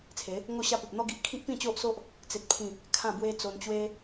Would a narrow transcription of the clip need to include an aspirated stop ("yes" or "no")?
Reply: yes